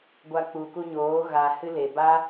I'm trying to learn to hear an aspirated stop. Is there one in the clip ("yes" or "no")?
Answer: no